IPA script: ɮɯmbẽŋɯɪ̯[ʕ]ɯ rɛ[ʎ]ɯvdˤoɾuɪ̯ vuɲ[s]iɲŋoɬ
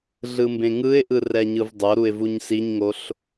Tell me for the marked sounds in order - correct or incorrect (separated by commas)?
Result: incorrect, incorrect, correct